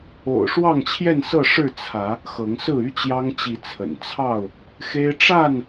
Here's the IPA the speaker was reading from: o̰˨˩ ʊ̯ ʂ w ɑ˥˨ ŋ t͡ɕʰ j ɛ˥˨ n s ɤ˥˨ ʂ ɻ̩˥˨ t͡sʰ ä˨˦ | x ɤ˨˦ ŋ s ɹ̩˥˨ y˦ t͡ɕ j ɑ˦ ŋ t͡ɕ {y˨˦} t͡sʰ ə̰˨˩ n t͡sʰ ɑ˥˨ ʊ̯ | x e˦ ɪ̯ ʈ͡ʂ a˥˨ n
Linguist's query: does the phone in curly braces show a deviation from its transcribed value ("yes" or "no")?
yes